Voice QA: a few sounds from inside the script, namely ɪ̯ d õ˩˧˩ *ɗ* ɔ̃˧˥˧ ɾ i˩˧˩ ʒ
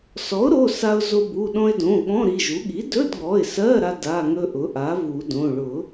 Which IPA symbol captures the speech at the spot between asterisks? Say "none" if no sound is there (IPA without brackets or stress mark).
ɠ